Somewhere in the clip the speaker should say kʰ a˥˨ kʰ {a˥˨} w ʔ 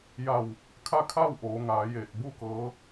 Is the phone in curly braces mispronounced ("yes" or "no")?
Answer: no